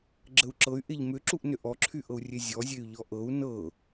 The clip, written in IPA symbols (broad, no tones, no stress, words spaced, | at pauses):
ɡ͡ǁəu̯ǁɤy̯ ʔeʎmʏǁuʔnʏ ʔɔǁʰyʔɤu̯ rʲezʲɔzʲey̯ ʎɔʔɤu̯ nɤ